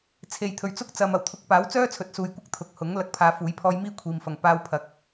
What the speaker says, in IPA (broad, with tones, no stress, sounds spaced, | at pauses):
t͡sʰ e˨˩ j t̪ʰ ɵ˨˩ ɥ t͡s ʊ˥ k̚ t͡s ɐ˨ m ɐ˨˩ w t̪ʰ ʊ˨˥ k̚ p aː˨˥ w t͡s œː˥ t͡sʰ ɵ˨˥ t̚ s uː˨ j kʷ ɐ˥ k̚ t̪ʰ ʊ˨ k̚ h ʊ˨˥ ŋ l ɐ˨˥ k̚ pʰ aː˨˧ f uː˨˥ j pʰ ɔː˧ j m iː˥ kʷʰ iː˨ m f ɐ˨ ŋ p aː˧ w pʰ ɐ˨ k̚